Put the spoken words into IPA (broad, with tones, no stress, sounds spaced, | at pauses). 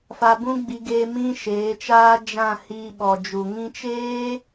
f a˧ b ũ˦ ɡ͡b i˧ ɡ eː˧ m ĩ˦ ʃ eː˨˦ t͡ʃ aː˦ d͡ʒ ã˦˨ h iː˧ ɓ ɔ˨ d͡ʒ u˨ ŋ ĩ˧ t͡ʃ eː˦